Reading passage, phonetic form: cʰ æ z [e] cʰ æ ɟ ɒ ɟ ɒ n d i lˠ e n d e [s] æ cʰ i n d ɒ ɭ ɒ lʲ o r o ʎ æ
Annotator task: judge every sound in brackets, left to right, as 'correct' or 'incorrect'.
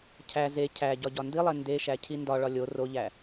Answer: correct, incorrect: ʃ

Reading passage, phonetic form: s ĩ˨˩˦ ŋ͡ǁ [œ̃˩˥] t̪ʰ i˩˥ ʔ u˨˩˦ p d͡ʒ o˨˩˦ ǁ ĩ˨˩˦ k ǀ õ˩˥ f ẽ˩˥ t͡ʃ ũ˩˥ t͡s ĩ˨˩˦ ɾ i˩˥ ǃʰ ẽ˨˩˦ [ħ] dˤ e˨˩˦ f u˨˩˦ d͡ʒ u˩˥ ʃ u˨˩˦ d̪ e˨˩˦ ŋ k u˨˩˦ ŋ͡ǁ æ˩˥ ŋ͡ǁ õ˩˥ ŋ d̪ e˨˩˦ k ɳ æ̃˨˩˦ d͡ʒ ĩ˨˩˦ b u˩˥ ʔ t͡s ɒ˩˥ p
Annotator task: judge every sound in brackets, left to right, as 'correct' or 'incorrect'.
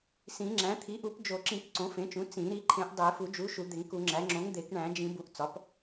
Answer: incorrect: æ̃˩˥, incorrect: ʔ

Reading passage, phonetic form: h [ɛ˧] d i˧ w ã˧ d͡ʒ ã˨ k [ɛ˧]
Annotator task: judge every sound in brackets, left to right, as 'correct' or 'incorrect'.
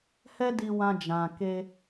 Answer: incorrect: ɛ˦, incorrect: e˧

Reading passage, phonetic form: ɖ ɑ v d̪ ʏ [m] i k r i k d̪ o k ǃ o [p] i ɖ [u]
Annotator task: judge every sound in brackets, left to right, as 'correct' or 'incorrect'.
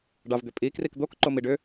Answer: incorrect: pʼ, incorrect: m, incorrect: ʏ

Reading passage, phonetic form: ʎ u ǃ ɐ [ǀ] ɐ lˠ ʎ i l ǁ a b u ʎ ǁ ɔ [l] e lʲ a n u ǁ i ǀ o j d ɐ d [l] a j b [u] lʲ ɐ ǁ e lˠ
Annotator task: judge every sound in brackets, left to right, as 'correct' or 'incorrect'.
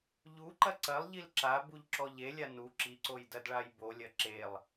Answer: correct, incorrect: ʎ, incorrect: ɭ, incorrect: o

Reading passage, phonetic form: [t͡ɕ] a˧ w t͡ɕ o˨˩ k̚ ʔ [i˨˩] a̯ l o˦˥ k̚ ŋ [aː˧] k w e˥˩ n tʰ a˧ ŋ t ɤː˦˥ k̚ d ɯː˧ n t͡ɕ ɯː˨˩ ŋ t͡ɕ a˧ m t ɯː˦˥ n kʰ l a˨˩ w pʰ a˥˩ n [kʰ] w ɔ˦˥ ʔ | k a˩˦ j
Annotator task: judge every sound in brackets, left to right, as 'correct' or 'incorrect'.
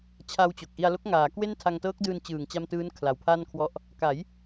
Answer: incorrect: t͡ɕʰ, incorrect: i˧, incorrect: aː˩˦, correct

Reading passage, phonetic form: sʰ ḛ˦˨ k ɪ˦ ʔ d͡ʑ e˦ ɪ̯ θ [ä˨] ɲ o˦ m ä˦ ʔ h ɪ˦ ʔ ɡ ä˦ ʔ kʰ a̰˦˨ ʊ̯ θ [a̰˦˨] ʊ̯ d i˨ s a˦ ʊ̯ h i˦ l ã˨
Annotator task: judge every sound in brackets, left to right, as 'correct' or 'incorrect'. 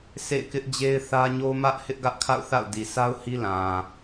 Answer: incorrect: ä˦, correct

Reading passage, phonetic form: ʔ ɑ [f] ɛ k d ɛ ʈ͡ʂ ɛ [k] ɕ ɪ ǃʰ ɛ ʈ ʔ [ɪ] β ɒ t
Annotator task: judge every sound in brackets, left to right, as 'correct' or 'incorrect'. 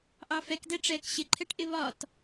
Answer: correct, correct, correct

